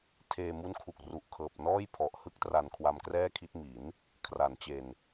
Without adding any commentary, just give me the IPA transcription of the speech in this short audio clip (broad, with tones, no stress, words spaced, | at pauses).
tʰeː˧mu˦˥nkʰu˨˩k̚ ru˨˩ʔkʰɤː˨˩p̚nɔː˥˩j pʰɔ˨˩ʔ hɯ˥˩k̚tra˧n kʰwa˧mkrɛː˥˩kʰi˦˥t̚ mi˩˦n | kʰra˨˩nt͡ɕe˧n